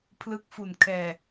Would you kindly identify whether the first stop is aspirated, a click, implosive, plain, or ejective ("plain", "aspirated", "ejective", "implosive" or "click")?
aspirated